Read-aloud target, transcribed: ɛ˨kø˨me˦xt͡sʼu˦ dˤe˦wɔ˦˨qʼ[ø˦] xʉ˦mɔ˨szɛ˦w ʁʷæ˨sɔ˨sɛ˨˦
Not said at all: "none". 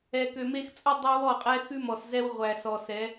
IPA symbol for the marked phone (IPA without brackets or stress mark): ɛ˦